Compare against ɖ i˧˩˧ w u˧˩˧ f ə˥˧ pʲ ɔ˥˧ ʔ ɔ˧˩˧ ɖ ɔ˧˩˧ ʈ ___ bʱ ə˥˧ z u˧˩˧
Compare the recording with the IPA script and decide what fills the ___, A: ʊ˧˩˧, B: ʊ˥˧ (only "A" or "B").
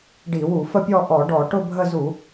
B